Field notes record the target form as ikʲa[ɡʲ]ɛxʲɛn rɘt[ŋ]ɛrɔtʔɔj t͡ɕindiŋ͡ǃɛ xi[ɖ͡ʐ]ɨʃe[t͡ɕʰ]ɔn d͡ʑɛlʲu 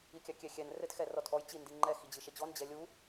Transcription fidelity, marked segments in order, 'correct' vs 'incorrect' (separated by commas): incorrect, incorrect, incorrect, incorrect